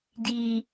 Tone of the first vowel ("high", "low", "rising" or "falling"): low